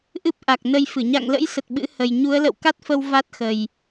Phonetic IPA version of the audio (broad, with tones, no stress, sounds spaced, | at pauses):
ʔ ɨ˦˥ p̚ ʔ a˨˩ k̚ n ə˧ j f ɨ˧˩ ɲ a̰˧˨ ŋ l ə̰˧˥ j s ə˨˩ t̚ ɓ ɨ̰˧˥ h ə˨˩ j ɲ u˨˦ ə̯ l ə̰˧˨ w k a˦˥ t̚ f ə˧ w v a˦˥ t̚ x ə˨˩ j